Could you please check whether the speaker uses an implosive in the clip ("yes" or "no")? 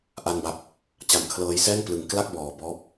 no